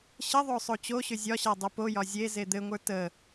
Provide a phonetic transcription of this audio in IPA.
ɕ ə ðˤ o sˤ o t͡ɕ o ɕ ʏ zʲ ɒ ɕ a dˤ u p o j ɒ zʲ e z e d̪ ɘ ŋʷ ə˞ t ə

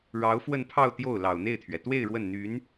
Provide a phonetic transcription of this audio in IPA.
ɻ ɑ˧˥ ʊ̯ f w ə˥˧ n pʰ ɑ˥˧ ʊ̯ t̪ j o˥˩ ʊ̯ l ɑ˨˩ ʊ̯ n̪ e˥˩ ɪ̯ t̪ʰ ɥ ɛ˩ t̪ w e˥˧ ɪ̯ ɻ w ə˥˩ n n̪ y˧˥ n

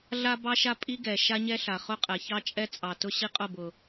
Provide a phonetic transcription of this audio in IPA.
ɮ a˦ b ɑ˦ ʃ a˦ pʼ i˦ ɡ ɛ˨ ʃ a˦ ɲ ɛ˦ ɬ a˨ χ ʊ˦ qʼ ɛ˨ ç ɑ˦ t͡ʃʼ ɛ˦ t͡sʼ ɑ˨ t ʊ˦ ɕ i˦ qʼ ʊ˦˨ b ʊ˨

